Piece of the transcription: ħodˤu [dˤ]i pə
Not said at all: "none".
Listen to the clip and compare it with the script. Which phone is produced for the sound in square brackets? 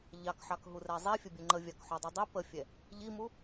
dˤ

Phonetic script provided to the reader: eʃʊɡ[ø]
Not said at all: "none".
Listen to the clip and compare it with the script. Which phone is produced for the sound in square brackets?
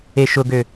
ø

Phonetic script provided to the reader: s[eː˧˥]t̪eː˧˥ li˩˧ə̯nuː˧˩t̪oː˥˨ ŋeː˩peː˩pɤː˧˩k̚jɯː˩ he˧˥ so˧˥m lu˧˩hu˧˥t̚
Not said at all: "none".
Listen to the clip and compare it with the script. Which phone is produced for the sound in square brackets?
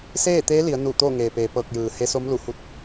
eː˥˨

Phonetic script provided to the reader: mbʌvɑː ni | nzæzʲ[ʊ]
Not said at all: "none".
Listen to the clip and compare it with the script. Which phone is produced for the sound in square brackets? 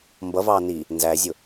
ʊ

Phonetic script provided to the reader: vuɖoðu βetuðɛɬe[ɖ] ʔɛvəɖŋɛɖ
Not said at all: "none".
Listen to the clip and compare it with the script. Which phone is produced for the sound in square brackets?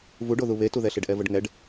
ɖ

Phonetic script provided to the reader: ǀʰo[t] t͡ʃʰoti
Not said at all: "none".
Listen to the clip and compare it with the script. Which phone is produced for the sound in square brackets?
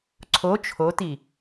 none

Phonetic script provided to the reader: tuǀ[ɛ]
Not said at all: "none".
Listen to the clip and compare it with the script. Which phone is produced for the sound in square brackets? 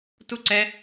ɛ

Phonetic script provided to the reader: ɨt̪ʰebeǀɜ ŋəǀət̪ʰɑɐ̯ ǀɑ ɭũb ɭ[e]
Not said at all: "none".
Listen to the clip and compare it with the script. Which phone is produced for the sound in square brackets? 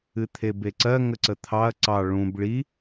i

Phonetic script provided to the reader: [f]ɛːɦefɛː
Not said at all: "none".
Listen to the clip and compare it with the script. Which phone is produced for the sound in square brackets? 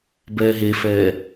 b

